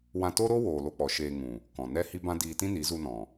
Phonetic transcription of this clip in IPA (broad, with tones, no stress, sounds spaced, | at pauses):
w ã˧ t oː˦ ɾ oː˦ w oː˨ l o˧ k͡p ɔ˨ ʃ eː˧ ŋ ũ˨ | k ɔ̃˨ n ɛ˦ h i˦ b ã˦ d iː˧ t ĩ˦ n i˨˦ z u˧ n ɔ̃˨